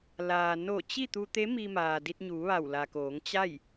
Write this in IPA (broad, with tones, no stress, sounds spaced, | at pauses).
l aː˩ n o˧˩ t͡ɕ i˥˨ t̪ u˧ t̪ e˧˥ m i˧ m aː˩ d i˧ t̚ ɲ uː˩˧ ʋ a˧˩ w l a˩ k oː˩˧ ŋ t͡ɕ a˥˨ j